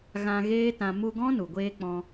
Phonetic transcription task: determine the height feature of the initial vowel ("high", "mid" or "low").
low